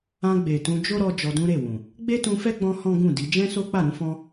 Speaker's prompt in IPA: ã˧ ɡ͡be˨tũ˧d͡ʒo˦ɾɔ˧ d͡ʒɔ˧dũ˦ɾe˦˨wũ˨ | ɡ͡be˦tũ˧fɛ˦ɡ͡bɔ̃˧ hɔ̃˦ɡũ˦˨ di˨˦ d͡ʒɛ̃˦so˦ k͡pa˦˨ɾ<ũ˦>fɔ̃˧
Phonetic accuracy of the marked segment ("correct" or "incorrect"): incorrect